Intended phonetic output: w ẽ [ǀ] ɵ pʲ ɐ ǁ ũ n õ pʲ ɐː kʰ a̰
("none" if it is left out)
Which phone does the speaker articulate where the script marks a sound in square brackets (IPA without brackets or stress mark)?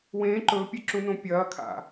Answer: ǃ